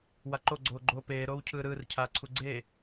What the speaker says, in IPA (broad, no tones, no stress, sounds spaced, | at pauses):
w a ǃ o ɡ͡ǀ oː ɡ͡ǃ oː p eː ɾ oː w cʰ ɯː ɾ ɯː r cʰ aː ǀʰ u ɡ͡ǀ eː